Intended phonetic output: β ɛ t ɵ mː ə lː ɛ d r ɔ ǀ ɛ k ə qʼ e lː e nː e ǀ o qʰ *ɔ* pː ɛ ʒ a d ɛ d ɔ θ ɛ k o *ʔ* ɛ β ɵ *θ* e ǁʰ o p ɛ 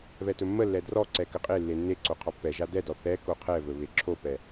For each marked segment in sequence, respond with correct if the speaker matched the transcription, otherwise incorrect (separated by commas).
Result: correct, incorrect, incorrect